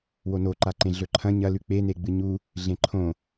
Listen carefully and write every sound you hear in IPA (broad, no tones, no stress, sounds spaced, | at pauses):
w o n o ǃ a ǃ ẽ ɮ ɵ ǃʰ ɐ̃ ɲ ɐ l ʉ k͡p e n e ɡ͡b ɨ ɲ u | ɮ ẽ ǃʰ õ